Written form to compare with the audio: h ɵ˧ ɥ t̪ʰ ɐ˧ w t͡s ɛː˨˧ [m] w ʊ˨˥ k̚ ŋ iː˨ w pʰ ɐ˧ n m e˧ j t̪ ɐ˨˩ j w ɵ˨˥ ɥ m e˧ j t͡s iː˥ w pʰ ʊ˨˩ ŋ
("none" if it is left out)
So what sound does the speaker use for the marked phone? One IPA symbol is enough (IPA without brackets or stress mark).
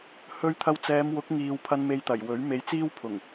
m